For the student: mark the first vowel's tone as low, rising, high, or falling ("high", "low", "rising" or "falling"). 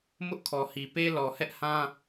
high